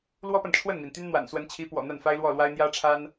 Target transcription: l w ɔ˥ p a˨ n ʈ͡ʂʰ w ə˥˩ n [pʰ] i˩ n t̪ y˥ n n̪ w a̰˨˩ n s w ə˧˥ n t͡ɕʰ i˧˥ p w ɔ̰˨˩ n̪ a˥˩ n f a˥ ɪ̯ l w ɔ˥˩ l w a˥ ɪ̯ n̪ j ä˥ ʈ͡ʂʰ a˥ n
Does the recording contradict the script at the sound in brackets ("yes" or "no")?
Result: yes